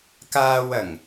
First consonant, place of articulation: velar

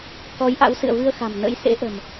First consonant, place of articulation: velar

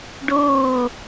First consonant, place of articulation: retroflex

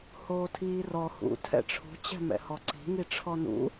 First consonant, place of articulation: glottal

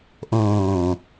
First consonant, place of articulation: glottal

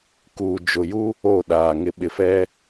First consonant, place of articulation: velar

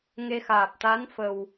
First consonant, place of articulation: velar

